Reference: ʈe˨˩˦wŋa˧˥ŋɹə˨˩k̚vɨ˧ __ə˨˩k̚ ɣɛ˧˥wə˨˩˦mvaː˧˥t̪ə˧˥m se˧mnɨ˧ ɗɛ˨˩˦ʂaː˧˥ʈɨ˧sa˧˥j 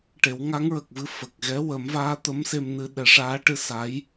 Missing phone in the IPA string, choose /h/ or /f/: f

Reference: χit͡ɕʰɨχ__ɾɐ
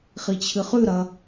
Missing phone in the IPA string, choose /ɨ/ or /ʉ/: ʉ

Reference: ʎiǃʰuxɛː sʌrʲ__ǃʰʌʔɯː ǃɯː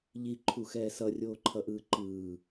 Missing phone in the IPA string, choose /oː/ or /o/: oː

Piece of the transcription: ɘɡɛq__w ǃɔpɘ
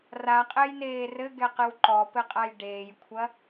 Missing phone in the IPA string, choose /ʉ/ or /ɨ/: ɨ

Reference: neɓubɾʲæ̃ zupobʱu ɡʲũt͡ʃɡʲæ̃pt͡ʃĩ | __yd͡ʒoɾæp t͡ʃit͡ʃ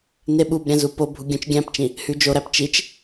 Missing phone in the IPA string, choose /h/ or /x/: h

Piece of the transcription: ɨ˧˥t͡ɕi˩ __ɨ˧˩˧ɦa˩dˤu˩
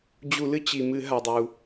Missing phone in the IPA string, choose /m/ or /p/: m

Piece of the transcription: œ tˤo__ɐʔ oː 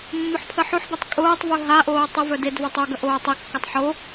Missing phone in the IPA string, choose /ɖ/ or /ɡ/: ɡ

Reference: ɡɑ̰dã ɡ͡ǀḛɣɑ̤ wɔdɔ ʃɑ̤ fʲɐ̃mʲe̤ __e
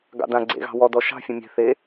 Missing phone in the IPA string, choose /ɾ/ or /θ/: θ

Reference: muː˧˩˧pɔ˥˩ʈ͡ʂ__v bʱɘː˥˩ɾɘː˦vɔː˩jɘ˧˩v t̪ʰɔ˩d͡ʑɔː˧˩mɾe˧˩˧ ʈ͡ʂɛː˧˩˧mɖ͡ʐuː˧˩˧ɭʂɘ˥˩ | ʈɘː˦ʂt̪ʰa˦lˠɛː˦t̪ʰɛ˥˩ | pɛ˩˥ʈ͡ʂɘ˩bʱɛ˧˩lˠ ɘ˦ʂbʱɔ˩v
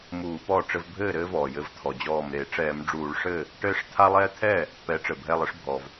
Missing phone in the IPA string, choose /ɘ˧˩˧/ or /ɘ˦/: ɘ˦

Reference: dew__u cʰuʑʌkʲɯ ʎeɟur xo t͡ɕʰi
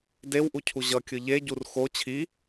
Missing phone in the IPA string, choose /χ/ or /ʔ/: ʔ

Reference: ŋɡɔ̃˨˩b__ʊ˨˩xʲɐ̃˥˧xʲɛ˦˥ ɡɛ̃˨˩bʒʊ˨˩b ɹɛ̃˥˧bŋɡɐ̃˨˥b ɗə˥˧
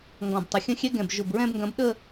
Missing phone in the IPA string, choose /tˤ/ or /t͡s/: tˤ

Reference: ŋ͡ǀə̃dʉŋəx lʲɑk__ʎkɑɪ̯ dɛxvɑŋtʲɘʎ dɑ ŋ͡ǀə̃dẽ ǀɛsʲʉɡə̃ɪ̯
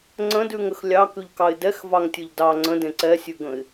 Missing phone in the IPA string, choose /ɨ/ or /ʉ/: ʉ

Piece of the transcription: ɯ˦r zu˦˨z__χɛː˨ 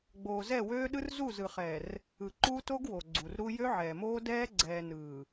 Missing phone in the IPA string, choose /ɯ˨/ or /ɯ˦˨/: ɯ˨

